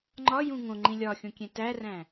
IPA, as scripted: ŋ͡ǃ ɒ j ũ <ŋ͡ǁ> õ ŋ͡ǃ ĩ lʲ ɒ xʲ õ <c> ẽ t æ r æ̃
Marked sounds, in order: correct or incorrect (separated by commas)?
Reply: incorrect, incorrect